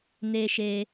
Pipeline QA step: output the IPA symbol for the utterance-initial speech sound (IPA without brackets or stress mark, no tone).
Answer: n